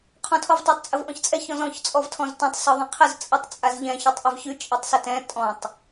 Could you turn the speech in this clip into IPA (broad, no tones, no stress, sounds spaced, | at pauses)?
qʰ ɔ̃ tʰ ɔ v tˤ a tˤ t͡sʼ ə v ʔ ɔ̃ ç t͡sʼ ɛ ç ɔ̃ z ɔ̃ ç t͡sʼ ɔ v tʰ ɔ̃ z t ɔ̃ tˤ s ɔ ðˤ ɛ̃ qʰ ə z t͡sʼ ə tˤ t͡sʼ a z ʎ ɛ̃ ç ɔ tˤ ʔ ɛ v ç ʉ t͡ʃʼ e tˤ s ə t ɛ̃ tʼ ɔ̃ tˤ